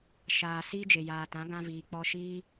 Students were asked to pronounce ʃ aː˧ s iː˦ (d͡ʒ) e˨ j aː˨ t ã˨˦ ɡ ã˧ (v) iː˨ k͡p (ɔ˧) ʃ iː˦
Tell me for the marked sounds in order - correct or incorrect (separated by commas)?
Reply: correct, correct, correct